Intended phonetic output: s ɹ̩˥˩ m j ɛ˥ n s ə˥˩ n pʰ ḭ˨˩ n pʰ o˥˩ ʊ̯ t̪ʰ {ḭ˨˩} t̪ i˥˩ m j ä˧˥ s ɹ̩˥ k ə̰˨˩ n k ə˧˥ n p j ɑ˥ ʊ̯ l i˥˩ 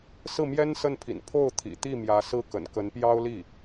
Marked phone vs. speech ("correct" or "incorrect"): correct